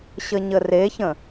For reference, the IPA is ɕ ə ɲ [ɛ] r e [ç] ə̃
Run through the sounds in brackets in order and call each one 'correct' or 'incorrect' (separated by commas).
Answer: incorrect, correct